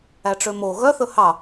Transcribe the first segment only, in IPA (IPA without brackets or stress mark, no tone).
æ